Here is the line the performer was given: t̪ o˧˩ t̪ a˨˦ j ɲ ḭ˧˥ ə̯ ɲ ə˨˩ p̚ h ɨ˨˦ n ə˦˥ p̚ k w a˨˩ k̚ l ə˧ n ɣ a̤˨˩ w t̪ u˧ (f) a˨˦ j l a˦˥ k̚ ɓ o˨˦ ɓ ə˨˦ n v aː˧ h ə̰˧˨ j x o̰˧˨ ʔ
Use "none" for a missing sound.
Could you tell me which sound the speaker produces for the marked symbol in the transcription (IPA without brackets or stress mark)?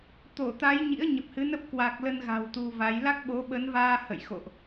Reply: v